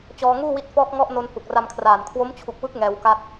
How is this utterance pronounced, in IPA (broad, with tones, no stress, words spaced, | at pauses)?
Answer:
t͡ɕɔː˧ŋuː˥˩wi˦˥t̚ fɔː˦˥k̚ŋɔ˦˥ʔ no˧nhu˨˩k̚ra˧mkʰraː˨˩n kʰwo˦˥mt͡ɕʰu˨˩k̚wɯ˦˥k̚ ŋɛː˧wka˥˩t̚